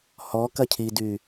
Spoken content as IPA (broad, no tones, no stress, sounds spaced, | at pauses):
h ɔ k ɐ cʰ i d y